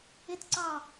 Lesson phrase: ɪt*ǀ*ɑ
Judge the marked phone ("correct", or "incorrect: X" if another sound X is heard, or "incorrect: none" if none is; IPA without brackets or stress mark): correct